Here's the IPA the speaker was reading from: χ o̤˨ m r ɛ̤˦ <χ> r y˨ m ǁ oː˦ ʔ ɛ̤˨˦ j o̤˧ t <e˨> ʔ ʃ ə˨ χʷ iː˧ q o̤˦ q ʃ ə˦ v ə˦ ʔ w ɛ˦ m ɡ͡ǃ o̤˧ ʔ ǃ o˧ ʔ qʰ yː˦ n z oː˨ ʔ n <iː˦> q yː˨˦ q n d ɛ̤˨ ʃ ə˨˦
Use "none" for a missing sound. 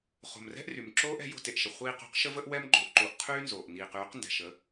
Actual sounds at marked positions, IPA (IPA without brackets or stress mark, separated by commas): ʔ, e˨, iː˨